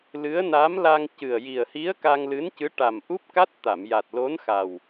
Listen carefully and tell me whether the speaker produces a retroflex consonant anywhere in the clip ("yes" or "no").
yes